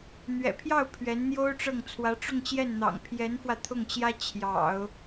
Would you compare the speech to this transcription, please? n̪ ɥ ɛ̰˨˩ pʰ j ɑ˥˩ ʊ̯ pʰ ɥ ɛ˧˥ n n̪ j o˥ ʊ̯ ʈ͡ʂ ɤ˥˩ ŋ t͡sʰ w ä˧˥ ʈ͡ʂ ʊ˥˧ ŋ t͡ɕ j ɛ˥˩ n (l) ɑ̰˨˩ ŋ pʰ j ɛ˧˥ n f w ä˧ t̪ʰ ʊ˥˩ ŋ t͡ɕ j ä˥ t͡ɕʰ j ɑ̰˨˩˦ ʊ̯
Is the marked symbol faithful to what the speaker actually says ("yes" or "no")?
no